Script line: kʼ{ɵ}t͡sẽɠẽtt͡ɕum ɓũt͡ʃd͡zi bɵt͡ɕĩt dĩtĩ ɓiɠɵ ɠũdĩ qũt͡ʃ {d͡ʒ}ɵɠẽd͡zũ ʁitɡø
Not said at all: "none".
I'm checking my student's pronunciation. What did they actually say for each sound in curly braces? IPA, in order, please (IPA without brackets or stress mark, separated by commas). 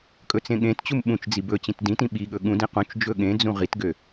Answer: ɵ, d͡ʒ